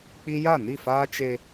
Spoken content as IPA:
k͡p i˦ j a˦˨ n i˦˨ f aː˦ t͡ʃ e˦

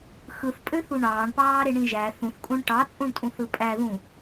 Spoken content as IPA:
x ɯ θ pʼ ø θ u ɳ ɑː ɳ p ɑː ɾ e ɳ ĩ ʒ æ θ ũ θ kʼ ũ ɳ ʈ ɑ t͡sʼ ũ ɳ tʼ ũ θ ɯ pʼ æ ð ũ

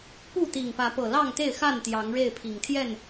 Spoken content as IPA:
p u˥˨ t̪ i˨˩ ŋ p ä˨˦ p ɤ˨˩ l ɑ˥˨ ŋ t̪ e˥˨ ɪ̯ x a˥˨ n t̪ j ɑ˨˦ ŋ ɻ e˥˨ ɪ̯ pʰ i˨˩ ŋ t̪ʰ j ɛ˥˨ n

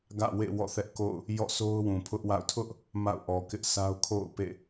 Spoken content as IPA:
ɡ ä̰˦˨ w ḛ˦˨ w ɔ̰˦˨ θ ɛ˦ ʔ k o̰˦˨ ʊ̯ | j ɔ̰˦˨ s o˦ ʊ̯ w ũ˨ pʰ ʊ˦ ʔ w a̰˦˨ ʊ̯ tʰ ʊ˦ ʔ | m a̰˦˨ ʊ̯ ʔ ɔ˨ k ɪ˦ ʔ sʰ a˦ ʊ̯ kʰ o̰˦˨ ʊ̯ p ḛ˦˨

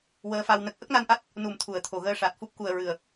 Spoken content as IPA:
w əː˧ f a˧ w n ə˦˥ k̚ ʔ ə˦˥ k̚ n a˧ n ʔ a˦˥ t̚ | n u˨˩˦ m t̪ʰ u˨˩˨ ə̯ t̪ʰ o˨˩˨ ɣ əː˧ ʂ a˨˩ t̚ f u˦˥ p̚ k u˨˩ ə̯ ɹ ɨ˨˩ ə̯

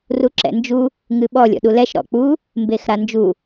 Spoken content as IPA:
r u ǁ ɛ̰ n d͡ʒ u | ŋ ɨ ɓ ɔ lʲ ɔ̰ ɗ u l ɛ ʃ ɾ ɔ̰ k͡p u | m b e x ɾ a n d͡ʒ u

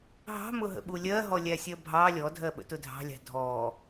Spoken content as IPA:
ɦ ɑ̤ m ʊ ɦ ə̰ ɓ u lʲ ɜ ɦ ɔ lʲ æ sʲ ɜ bʱ ɑ lʲ ɔ dʱ ɜ ɓ ə̰ t ʊ dʱ ɑ̤ lʲ ɑ̤ dʱ ɔ

